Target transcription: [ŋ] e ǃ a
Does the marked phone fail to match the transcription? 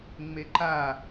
yes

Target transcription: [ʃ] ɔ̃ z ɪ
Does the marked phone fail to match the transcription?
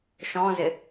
no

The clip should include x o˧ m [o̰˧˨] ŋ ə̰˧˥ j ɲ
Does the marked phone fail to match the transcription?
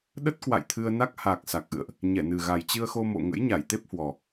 no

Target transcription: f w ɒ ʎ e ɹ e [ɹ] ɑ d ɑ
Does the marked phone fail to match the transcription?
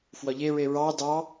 no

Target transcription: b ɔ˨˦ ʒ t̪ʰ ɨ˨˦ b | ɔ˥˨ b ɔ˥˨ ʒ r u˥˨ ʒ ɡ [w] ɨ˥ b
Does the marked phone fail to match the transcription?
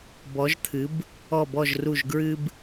yes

